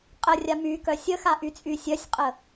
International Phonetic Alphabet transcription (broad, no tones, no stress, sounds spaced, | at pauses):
qʼ ə rʲ a m y k œ sʲ ə x a ʔ y t͡sʼ y sʲ œ sʲ qʼ ə